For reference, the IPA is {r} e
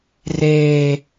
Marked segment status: correct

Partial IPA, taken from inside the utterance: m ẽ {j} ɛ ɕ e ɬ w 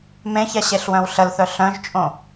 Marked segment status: incorrect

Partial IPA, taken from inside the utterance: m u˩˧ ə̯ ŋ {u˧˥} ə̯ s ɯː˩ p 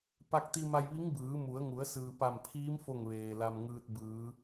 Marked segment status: incorrect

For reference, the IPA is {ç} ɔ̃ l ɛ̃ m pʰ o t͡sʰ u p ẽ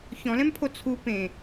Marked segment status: correct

